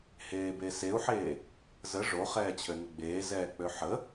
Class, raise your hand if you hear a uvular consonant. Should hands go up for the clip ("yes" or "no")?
yes